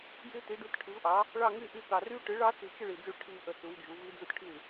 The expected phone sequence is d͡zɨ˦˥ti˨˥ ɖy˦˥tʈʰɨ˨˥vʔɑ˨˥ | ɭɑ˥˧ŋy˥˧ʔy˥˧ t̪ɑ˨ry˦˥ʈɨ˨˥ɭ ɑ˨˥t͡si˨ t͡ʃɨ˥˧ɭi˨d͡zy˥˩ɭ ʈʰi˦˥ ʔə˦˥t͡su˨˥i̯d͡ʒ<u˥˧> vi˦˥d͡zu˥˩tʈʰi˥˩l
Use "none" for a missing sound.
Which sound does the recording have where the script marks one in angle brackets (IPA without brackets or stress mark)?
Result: u˨˥